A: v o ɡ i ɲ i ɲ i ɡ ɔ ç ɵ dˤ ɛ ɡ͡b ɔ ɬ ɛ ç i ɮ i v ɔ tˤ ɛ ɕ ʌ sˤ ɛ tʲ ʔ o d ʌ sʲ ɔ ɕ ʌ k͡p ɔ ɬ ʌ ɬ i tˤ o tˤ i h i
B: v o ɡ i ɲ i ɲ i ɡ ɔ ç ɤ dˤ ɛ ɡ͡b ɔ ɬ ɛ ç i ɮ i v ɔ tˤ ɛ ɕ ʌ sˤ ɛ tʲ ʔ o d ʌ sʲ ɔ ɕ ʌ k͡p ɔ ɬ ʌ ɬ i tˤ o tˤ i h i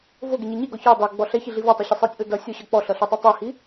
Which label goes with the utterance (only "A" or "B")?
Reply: B